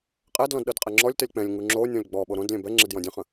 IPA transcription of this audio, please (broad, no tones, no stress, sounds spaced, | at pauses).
qʼ ɛ d l ɔ̃ d ɗ ɤ d qʼ ɛ ŋ͡ǁ ɔ lʲ t ɛ lʲ k͡p ɛ̃ lʲ ŋ u ŋ͡ǁ o nʲ ɔ̃ lʲ ɡ͡b ɔ ɓ o ɾ õ d lʲ ɛ̃ b ɛ ŋ͡ǁ e d j ɔ̃ dʲ ə̃ χ ə̃